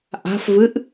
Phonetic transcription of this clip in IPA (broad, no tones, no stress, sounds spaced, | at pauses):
ʔ a̤ f v ɨ ʔ